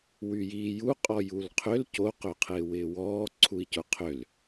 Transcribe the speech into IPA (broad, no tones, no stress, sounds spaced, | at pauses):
w y j iː j u qʼ ɔ j u l qʰ ʏ l c o q ø qʰ ɪː w ɪː w ɔː ǀʰ u i̯ c ʊ qʰ ʏ l